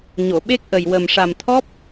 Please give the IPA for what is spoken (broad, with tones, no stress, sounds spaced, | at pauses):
ɲ o˨˩˨ ɓ e˦˥ k̚ ʔ ə˨˩ j w ə˨˩ m ʂ a˨˩ m t̪ʰ ɔ˦˥ p̚